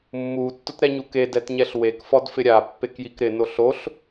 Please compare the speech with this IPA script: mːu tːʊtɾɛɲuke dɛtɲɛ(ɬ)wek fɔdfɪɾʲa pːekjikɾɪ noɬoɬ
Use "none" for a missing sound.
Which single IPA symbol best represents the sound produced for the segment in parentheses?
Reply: ɬ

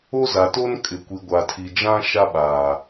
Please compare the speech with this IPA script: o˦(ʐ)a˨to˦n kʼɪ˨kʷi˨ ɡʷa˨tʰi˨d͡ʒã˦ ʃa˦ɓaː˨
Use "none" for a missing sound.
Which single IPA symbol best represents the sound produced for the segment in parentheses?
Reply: z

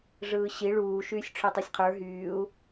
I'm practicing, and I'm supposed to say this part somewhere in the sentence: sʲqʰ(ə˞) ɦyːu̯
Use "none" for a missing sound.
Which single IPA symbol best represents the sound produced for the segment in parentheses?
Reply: ə˞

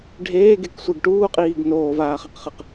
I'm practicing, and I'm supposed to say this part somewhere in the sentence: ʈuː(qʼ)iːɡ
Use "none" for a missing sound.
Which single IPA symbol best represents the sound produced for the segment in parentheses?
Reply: qʼ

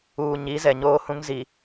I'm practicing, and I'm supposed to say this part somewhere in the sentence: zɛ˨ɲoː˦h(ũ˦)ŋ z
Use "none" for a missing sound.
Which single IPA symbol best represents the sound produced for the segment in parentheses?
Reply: ũ˦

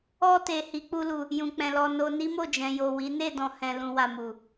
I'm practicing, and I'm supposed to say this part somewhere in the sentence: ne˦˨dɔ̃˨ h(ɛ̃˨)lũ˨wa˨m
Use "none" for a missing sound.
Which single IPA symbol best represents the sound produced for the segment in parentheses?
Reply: ɛ̃˨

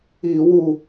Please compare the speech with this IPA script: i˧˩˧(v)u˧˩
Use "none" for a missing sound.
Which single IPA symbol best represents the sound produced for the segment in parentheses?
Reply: w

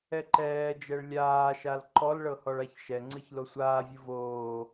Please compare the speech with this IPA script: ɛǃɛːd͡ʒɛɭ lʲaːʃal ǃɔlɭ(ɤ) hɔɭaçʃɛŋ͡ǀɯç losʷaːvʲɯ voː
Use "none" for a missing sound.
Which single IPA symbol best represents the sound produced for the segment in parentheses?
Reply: ɤ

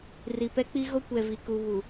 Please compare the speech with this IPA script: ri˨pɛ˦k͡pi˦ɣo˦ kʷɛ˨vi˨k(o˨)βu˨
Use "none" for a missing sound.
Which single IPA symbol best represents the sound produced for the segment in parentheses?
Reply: u˨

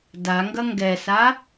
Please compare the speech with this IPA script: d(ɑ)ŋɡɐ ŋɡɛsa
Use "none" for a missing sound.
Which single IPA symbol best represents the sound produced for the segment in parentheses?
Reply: a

